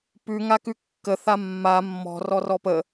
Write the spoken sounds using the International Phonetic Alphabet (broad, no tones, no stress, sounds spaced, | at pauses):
p ʉ ŋ a k ʉ kː ə θ a mː a mː ɔ̤ r ɔ r ɔ p ə